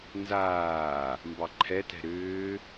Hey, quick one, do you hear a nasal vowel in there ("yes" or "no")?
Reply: no